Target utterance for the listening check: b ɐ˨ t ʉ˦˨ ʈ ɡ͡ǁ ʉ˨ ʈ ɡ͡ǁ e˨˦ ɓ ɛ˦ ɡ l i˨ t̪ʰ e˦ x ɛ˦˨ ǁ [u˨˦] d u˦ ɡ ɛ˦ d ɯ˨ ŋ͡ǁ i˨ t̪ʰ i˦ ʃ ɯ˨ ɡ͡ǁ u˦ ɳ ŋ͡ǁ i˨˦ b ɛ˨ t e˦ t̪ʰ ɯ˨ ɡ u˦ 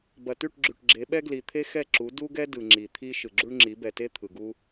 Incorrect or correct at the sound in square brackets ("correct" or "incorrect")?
correct